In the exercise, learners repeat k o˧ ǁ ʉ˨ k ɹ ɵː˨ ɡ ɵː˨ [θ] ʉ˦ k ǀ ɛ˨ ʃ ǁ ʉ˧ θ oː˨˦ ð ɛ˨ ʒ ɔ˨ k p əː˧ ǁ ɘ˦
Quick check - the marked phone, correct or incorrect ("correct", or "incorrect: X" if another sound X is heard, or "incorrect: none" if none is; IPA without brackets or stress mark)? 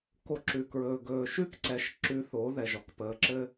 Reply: incorrect: ʃ